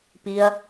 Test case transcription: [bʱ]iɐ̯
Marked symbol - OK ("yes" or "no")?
no